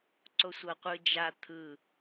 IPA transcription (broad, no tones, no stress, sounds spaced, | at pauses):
ǀ o sʷ ʌ qʷ ɯ d͡ʒ a t̪ʰ ɯ